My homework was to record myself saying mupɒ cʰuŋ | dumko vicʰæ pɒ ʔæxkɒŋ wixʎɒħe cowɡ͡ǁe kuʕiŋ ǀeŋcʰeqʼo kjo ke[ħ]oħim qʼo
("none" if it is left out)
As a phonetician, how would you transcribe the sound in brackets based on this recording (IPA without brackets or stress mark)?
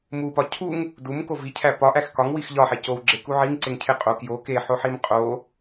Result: ħ